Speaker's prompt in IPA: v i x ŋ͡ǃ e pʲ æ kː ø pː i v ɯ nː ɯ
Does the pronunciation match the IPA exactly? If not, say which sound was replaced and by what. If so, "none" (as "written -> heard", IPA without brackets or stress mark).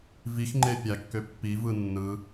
none